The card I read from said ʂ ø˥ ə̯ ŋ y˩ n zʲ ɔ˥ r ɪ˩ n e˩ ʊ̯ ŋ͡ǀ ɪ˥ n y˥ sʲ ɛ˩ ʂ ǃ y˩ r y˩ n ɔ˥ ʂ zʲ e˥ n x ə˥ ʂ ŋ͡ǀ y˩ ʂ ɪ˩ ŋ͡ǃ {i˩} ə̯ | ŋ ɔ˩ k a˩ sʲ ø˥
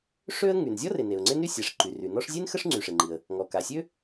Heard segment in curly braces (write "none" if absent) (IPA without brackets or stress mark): i˩